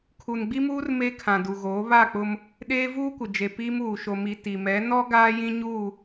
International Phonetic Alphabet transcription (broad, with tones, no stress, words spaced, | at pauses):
kʰu˨nɡ͡bi˦muː˦r me˦kʰã˨du˨ɣoː˨˦ βa˦˨k͡pʊ˦m | ɗeː˦vuː˦kʷɪ˨d͡ʒe˨ piː˦muː˨ ʃo˨mi˨ ti˨mɛ˨˦ nɔ˦ ɡaː˦jĩ˦ɲuː˦˨